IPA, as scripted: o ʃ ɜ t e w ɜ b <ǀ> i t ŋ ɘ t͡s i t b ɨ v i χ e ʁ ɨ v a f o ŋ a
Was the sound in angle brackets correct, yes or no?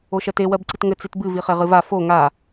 yes